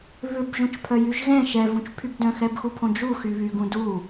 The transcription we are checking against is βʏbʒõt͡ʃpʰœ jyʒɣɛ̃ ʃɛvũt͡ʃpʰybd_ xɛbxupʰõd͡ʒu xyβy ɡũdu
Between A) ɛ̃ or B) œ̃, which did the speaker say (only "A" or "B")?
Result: B